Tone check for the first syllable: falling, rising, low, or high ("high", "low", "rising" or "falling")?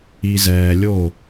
low